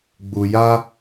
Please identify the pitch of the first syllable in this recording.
low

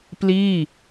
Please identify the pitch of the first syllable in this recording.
falling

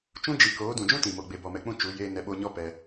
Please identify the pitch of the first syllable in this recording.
high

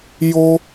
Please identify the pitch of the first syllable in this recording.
high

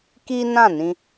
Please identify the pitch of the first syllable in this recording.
high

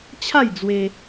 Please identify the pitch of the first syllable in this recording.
falling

